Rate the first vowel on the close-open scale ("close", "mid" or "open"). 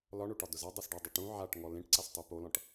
open